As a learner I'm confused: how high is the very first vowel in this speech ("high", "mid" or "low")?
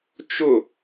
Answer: high